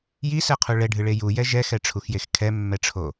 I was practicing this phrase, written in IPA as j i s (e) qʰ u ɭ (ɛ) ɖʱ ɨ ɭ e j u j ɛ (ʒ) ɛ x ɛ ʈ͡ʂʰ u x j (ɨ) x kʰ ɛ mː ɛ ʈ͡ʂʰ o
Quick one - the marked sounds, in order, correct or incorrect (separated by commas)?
incorrect, correct, correct, incorrect